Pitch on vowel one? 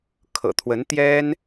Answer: low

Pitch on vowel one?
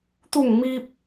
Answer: falling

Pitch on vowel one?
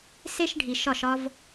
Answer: high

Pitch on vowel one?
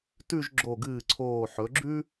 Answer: falling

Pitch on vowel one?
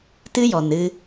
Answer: high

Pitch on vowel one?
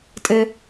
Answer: high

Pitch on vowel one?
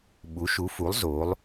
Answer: rising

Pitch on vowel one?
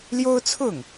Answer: high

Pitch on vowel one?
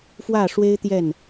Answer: falling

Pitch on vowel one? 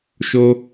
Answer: high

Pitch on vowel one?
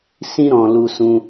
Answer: high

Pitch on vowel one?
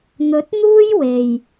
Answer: rising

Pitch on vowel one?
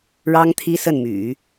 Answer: high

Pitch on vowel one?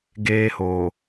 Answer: high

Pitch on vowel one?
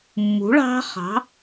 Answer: rising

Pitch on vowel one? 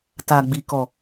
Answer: low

